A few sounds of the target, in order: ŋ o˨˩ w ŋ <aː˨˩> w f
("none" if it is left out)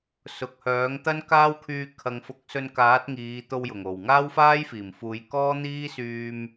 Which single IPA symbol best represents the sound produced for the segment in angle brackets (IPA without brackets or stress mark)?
aː˥